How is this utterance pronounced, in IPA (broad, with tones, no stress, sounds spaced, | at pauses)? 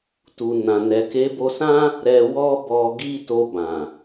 t u˨ n ã˨ n ɛ˨ k e˨˦ b o˧ s ã˦ | ɾ ɛ˧ w ɔ˧ b ɔ˧ ɡ i˦ t o˧ b ã˨